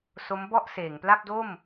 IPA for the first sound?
s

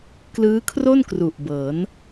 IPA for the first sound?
k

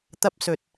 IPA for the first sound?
t̪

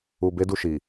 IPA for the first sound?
u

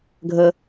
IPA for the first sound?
ɡʱ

